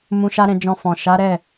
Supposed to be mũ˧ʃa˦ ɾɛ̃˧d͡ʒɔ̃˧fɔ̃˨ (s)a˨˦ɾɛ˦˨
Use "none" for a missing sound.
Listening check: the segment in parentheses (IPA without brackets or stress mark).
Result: ʃ